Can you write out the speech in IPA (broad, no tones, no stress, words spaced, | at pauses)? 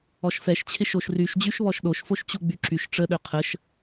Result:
ɔʃfɛʃt͡ɕʰɪʃoʃ ryʃ d͡ʑyʃβɔʃɗoʃfoʃ t͡ɕuɡ͡byǁyʃ ʈ͡ʂəɗø qʰəʃ